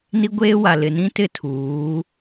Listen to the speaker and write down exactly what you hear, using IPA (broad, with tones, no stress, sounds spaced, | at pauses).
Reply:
n i˦ ɡʷ eː˦ w a˨ l ɪ˨ n ĩ˦ t ɪ˦˨ tʰ uː˨˦